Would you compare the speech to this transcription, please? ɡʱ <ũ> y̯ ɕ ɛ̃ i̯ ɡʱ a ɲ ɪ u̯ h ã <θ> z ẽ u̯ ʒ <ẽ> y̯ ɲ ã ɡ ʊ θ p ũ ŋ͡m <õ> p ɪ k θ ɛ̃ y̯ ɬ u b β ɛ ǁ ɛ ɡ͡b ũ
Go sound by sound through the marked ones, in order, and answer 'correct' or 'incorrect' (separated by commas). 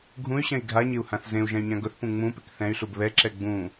correct, correct, incorrect, incorrect